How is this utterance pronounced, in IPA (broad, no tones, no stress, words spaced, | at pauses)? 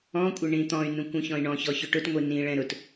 ɔ̃kʷʼɪ ɳĩt̪ɔ̃y̯nũkʷ ũçɔ̃i̯ɳɔ̃çɔ çʊʈʊtŋʷi nĩɭɛ̃ ɾʊt